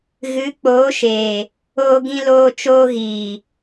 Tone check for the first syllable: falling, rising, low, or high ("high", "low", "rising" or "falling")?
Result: rising